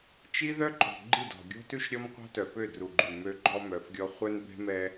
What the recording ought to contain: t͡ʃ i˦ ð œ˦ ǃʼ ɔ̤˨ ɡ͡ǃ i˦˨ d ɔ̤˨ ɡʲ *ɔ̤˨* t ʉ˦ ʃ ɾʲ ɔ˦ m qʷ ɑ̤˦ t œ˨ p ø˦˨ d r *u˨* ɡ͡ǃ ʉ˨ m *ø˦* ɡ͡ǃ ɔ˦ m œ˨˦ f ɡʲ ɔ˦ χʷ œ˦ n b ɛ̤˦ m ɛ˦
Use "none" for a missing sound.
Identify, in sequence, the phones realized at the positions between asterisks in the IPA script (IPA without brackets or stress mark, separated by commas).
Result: ɔ̤˦, u˨, ø˦